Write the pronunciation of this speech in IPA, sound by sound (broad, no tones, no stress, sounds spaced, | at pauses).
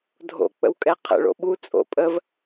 dʱ o̰ k͡p ə̰ w kʼ ɛ qʰ ə̰ ɭ o̰ ɓ u t͡sʼ o̰ pʼ ə v